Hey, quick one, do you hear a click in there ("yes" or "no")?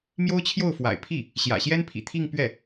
no